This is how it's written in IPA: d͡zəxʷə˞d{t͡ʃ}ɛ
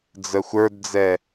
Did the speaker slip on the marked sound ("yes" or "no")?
yes